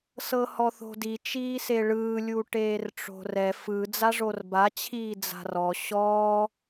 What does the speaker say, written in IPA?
s ɤ h ɔ θ o̤ d i t͡ʃ iː s e ɭ ɯː lʲ u ʈ eː r ʈ͡ʂ o̤ r ɛ f ɯ d͡z a ʐ o r b a t͡ɕʰ iː d͡z a̤ r ɔ ɕ ɔː

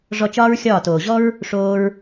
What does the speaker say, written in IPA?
ʐ ɔ˧ t͡ʃ ɒː˦ ɹ xʲ ɒː˦˨ t oː˨ ʑ ɔ˦ ɹ | ʂ oː˧ ɹ

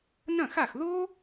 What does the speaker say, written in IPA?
n ɐ̃˥˩ x a˥˩ x ð o˥

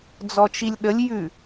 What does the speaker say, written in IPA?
d͡z ɔ t͡ʃ i lʲ ɗ ə lʲ j ʉ

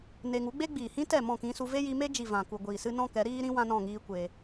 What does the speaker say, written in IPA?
n e˧ ŋ u˨˦ ɡ͡b e˦ ɡ͡b iː˨ h ĩ˦ t ɛ˦˨ m ɔ̃˦˨ k ĩ˧ s u˧ v e˦ j i˧ m e˦ d͡ʒ i˨ v ã˨ k u˨ ɡʷ iː˨ s ɨ˦ n ɔ̃˦ k ɛ˨˦ ɾ iː˧ ɾ ĩ˧ w ã˦ n ɔ̃˦˨ ŋ iː˦ kʷ e˧

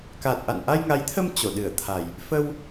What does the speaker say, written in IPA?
k a˨˩ t̚ ʔ a̰˧˨ n ʔ a˧ j ŋ a˨˦ j t̪ʰ ə˧ m t͡ɕ o˧˩ ɗ ɨ˧˩ ə̯ t̪ʰ a˨˩ j | f ə˧ w

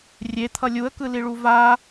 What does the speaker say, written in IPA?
rʲ e t̪ʰ ʌ lʲ u ə̯ k ɯ l i ɭ u v a

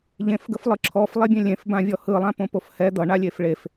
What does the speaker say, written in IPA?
ʎ ẽ f ɡ ə f lˠ ɯ ǁʰ ɔ f lˠ e bʲ ẽ lʲ ẽ f b ã vʲ ɔ h ɯ lˠ ã p õ p o f h ɛ d̪ ʌ ɳ a lʲ e f ɭ e f

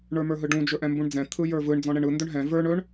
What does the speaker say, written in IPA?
ɳ ə˞ m ə˞ ɦ ɯ ɖ ũ d͡ʒ ɵ ʔ ɛ̃ m b ũ ɳ d͡z ɛ̃ t̪ʰ ɯ j ə˞ v ɯ ɳ d͡z ɔ̃ ɳ ɛ ɳ ɯ n d ɵ ɳ ɦ ɛ̃ v ə˞ ɳ ɵ ɳ

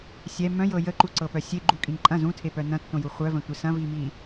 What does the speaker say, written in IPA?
sʲ ɛ m œ̃ j ɤ j ə ǃ u ǀ ɤ p œ sʲ e ɡ͡ǃ u kʼ ĩ ǃʼ ɐ̃ z ũ tʰ e p œ n ɐ̃ tː õ j u χʷ œ v ə̃ tʷ ɪ s ɐ̃ v i m i

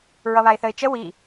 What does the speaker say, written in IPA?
ɹ ʌ β a ɪ̯ θ ə ɪ̯ t͡ʃ ə w i

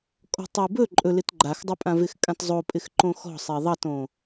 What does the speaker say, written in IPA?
kʼ ɔ̤ tˤ i b ɵ ǃʼ ɵ l ɪ t ɡ͡ǃ a x dˤ ɪ pʼ ã v ɪ x kʼ ã t zˤ o pʼ ɪ x ǃ õ x ɔ̤ sˤ e ðˤ ɑ t õ

